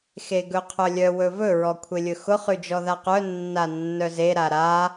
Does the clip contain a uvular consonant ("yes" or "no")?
yes